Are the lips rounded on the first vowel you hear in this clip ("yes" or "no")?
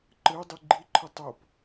no